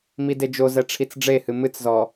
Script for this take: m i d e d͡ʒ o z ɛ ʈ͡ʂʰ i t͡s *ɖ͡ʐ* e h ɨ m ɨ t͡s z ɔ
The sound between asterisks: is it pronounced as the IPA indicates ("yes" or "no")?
yes